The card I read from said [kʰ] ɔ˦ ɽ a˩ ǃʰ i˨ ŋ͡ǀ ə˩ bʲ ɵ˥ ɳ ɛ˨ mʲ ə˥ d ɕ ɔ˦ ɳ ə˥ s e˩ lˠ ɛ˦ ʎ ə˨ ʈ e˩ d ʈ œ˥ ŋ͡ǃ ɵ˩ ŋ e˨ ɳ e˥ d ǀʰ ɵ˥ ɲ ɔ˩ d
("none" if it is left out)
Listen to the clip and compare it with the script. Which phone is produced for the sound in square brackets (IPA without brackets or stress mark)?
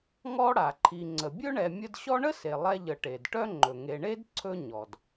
ŋ